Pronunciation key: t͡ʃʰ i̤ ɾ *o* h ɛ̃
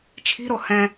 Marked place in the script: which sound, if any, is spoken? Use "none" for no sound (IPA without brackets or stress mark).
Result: o